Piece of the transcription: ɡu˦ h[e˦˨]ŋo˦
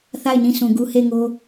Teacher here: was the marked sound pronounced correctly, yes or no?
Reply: yes